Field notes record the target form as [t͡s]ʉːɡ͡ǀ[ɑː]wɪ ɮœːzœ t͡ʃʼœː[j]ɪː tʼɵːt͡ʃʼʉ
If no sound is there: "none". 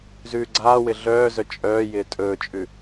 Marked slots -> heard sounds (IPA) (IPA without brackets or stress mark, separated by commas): z, aː, j